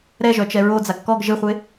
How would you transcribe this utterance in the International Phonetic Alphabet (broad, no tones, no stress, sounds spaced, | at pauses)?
ɾ ɛ ʒ œ t͡ʃ ɛ ɹ o d͡z a ɡ k ɔ ɡ ʒ ɪ χʷ e